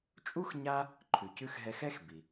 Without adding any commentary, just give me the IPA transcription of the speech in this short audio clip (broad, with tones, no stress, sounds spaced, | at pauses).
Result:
t͡ʃʼ u˥ x ɲ a˦ | ǃʰ ʉ˨ c ʉ˥ x ɦ ɛ˦ x ɛ˥ x b i˩